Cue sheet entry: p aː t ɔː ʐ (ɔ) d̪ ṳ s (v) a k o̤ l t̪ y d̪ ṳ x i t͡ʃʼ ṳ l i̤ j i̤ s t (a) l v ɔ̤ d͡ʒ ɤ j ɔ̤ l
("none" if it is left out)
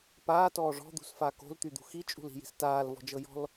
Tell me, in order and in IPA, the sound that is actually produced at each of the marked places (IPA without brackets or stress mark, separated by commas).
ɔ̤, f, aː